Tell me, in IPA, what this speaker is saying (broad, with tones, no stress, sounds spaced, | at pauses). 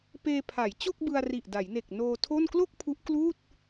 p eː˧ pʰ a˩˦ j t͡ɕ o˥˩ k̚ b ɯ˧ a̯ r i˨˩ ʔ d a˩˦ j n e˨˩ k̚ n oː˧ tʰ o˥˩ n k l o˥˩ k̚ pʰ u˦˥ ʔ k l uː˥˩ t̚